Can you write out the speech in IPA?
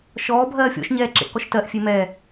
ʃ ɔː bʱ ɜː fʲ ɔ̰ ʃ ɲ ɛː ǁ ḛ ʔ k ɔ ʃ t ɜ ʔ fʲ e m ɛ

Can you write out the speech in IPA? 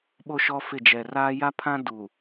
ɓ o˦ ʃ ɔ˦ f ɪ˦˨ d͡ʒ ɛ˨ r aː˦ j a˦ pʰ ã˦ d uː˨

